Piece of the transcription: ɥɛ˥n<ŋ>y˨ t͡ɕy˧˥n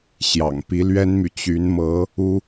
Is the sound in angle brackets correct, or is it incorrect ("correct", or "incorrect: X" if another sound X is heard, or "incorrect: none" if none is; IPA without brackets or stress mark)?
incorrect: m